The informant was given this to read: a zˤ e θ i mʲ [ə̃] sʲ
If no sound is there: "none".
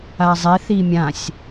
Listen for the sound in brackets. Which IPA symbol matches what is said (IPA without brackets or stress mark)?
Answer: ã